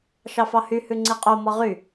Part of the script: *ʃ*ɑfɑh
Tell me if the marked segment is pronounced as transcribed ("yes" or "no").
yes